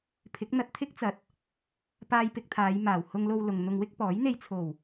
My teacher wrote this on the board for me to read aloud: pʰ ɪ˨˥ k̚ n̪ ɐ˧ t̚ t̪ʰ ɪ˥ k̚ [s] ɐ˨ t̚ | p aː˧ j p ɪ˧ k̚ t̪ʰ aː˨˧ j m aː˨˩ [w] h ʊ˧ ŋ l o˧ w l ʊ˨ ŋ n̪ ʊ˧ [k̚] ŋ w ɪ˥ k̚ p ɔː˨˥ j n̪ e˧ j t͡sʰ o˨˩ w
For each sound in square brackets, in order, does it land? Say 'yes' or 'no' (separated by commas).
no, yes, no